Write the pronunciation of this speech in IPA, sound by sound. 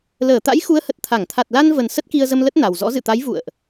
l əː˧˩ t̪ a̰˧˥ j x u˨˦ ə̯ h ə˨˩ t̚ t̪ʰ a˧˩ ŋ t̪ʰ a˨˩ t̚ l a˧ n v ə˨˩ n s ə˦˥ t̚ k i˧ ə̯ z ə˧ m l ə˦˥ t̚ n a˨˩ w z ɔ̰˧˥ z ɨ̰˧˨ t̪ a˨˦ j v ṵ˧˨ ə̯ ʔ

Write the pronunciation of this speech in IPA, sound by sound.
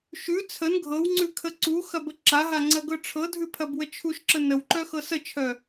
ʃ ʉ t͡sʰ ə n ɡʱ ɤ w ŋ͡ǀ ʉ kʰ ə ǀ u x ɐ b ə ǁ a ɦ a ŋ͡ǀ ɐ ɡ ɤ ʈ͡ʂʰ ɤ dʱ ʉ pʰ ɐ b w ə t͡ʃʰ u ʃ ǁ ə n ə w ǃ œ x ɤ s ə t͡ʃʰ œ

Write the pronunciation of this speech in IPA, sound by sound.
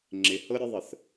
ŋ͡ǁ ɪ h ɤ ɾʲ ə ðˤ ə θ

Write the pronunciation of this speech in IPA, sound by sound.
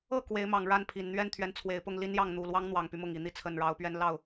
ɤ˥˨ k w e˨˦ ɪ̯ m ɑ˨˩ ŋ ɻ a˥˨ n pʰ i˨˩ n n̪ ɥ ɛ˦ n t̪ʰ ɥ ɛ˨˦ n t͡sʰ w e˨˩ ɪ̯ p ʊ˥˨ ŋ l i˦ n j ɑ˥˨ ŋ n̪ u˨˩ l w ɑ˦ ŋ n̪ w ɑ˨˩ ŋ p y˦ m ʊ˥˨ ŋ i˨˦ n̪ i˨˦ t͡sʰ ə˨˩ n ɻ ɑ˨˦ ʊ̯ p ɥ ɛ˦ n l ɑ˥˨ ʊ̯

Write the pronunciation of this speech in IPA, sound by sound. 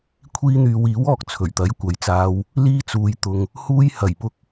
kʷʰ iː˧ n̪ yː˨˧ w iː˨˥ w ɔː˨ k̚ t͡sʰ ɵ˨˩ ɥ t̪ ɐ˨˥ j kʷ ɐ˨˧ j t͡s aː˧ w | l iː˧ t͡s uː˨ j t̪ ʊ˧ ŋ | h uː˧ j h ɐ˨˩ j p ʊ˧ k̚

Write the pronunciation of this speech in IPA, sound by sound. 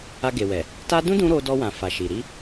a˧ ɡ e˨ w ɛ˨ | t a˦ d ũ˦ d ũ˦ ɾ o˧ d ɔ˧ w ã˨ f a˨ ʃ i˨ ɾ i˧

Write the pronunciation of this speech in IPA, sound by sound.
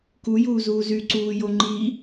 k u j uː z uː z y ǀ uː j o ŋ͡ǃ i

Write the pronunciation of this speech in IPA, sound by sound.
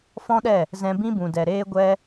f ɔ̃˦ ɗ ɛ˦˨ | z ɛ̃˧ b ĩ˦ b ũ˨ d ɛ˨ ɾ eː˦ ɡʷ ɛ˦

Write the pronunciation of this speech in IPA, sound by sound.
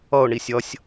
ʌ ʊ̯ ɳ i sʲ ʌ sʲ

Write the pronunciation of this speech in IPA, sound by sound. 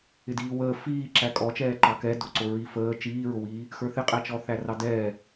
ɪ d iː w əː f iː ǁ æ kʼ ɔ t͡ʃ ɛː ǃ ɑ k ɛ d ʊ ǀ ʊ ɹ i f əː t͡ʃ iː ɹ ʊ w iː | x ə˞ θ ɪ qʼ æ t͡ʃ ɔ θ æ r ɑ d ɛː

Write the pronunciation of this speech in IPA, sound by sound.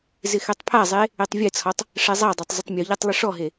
z ɪ x ɛ tˤ pʰ a zˤ e | e tˤ vʲ ɛ t͡sʰ ɔ tˤ | ʂ ɛ zˤ a dˤ a tˤ zˤ ɪ tˤ mʲ u ʎ ɛ tˤ lˠ ɪ ʂ ɔ ɦ e

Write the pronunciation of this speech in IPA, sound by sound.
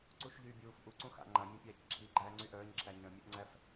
ǀ u ʃ ʎ yː bʲ uː f ʔ u ǀ ũ x a̰ ŋ͡ǃ ã mʲ œ̃ pʲ æː c ǁʰ i ɡ͡ǃ æː ŋ͡ǀ y ʔ œː ɲ ǁʰ æ ɲ œ̃ mʲ ʉ ʔ ŋ͡ǀ æ f

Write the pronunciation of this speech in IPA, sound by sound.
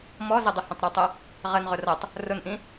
m ɔ z ə dˤ ə h ə̃ tˤ ɾ ɔ tˤ ʌ | ʁ ə n ʁ ʊ r ʌ tˤ | r ʊ n ʔ ĩ

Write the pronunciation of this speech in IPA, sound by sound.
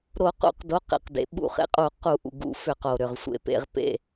ɾ o˧˩˧ q ṵ˧˩˧ q d o˩˧˩ q ḛ˩ q d ḛ˩ ɓ ṵ˧˩˧ χ ḛ˩ qʼ u˧˩˧ q u˧˩˧ ʔ ṵ˩ ɡ ṵ˧˩˧ f ʏ˧˩˧ q o˩ ɾ ʏ˩ ʁ sʷ ḛ˩ p ḛ˧˩˧ ʁ p ḛ˩˧˩

